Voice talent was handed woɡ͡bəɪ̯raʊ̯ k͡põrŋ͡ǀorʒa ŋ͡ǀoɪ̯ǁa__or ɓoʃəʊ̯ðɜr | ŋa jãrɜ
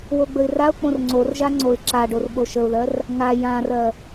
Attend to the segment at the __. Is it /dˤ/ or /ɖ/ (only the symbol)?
ɖ